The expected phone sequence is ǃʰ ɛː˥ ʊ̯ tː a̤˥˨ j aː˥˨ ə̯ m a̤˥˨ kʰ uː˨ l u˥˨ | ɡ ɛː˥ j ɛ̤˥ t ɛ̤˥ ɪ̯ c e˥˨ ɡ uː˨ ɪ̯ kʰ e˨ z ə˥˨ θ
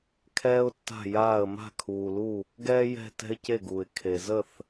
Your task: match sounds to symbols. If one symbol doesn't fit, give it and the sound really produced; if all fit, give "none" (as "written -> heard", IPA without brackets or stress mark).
ǃʰ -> kʰ